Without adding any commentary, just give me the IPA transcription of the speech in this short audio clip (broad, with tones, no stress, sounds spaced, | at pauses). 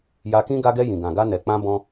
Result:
j a˧ k ĩ˦ ɡ a˧ ɡ ɛ˧ j ĩ˨ ɡ ã˨ ɡ a˧ n ɛ˨ k͡p ã˧ b ɔ̃˦